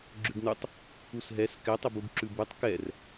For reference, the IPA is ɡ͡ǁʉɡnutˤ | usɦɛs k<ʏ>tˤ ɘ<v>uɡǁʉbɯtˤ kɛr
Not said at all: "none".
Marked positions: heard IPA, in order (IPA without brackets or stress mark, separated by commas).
ɛ, b